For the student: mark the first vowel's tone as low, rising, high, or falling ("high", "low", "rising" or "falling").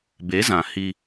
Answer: rising